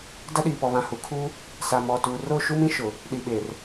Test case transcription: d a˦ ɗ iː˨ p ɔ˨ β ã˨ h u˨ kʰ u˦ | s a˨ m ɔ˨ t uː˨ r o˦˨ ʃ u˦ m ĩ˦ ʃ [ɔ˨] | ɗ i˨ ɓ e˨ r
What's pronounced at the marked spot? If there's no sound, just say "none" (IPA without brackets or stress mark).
ʊ˨